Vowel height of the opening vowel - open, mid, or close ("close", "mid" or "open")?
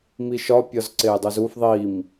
close